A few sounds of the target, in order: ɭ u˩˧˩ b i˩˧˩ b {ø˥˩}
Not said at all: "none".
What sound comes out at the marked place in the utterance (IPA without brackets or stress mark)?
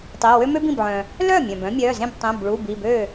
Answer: ø˥˩